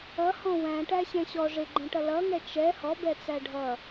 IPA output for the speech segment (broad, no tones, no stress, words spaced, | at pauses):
ʌhɔ̃ wæ̃ʈæ ɕɛ̃ɕɔ ʐɪɡ͡ǃɛ̃ʈʌ lʌŋɛ t͡ʃɛ hɔbɛt͡sæ ɖʱʌ